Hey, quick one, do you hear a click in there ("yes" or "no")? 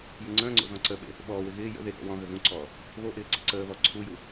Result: yes